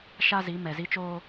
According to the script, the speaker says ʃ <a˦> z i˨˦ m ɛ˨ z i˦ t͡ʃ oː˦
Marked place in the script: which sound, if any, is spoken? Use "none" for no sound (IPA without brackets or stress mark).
a˦